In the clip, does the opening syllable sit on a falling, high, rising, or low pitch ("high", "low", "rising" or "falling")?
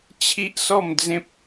high